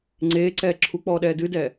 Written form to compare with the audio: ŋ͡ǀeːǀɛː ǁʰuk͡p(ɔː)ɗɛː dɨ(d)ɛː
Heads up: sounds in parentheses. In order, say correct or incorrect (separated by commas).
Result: correct, correct